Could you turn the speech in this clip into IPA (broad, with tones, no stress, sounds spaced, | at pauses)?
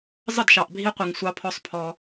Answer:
zˤ ə˦˨ d ʃ ɑ˨ ʔ bʱ i˦ qʷ i˨ ŋ sʷ ɑ˦ pʰ ɔ˦ sˤ pʰ ɔ˦